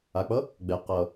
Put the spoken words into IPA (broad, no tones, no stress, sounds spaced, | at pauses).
a k͡p ʌ | ɡ͡b ɛ q ʌ